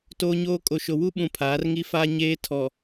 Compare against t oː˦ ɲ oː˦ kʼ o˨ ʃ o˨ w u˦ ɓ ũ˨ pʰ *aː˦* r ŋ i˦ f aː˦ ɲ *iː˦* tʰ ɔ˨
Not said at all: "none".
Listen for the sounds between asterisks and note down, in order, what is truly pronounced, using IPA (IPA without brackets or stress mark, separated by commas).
aː˨˦, eː˦